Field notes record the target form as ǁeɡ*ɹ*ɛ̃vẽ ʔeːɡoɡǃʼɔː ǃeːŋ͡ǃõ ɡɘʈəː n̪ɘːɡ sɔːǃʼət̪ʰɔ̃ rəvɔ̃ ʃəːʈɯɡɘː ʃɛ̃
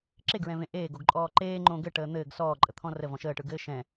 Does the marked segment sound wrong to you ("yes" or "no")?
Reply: no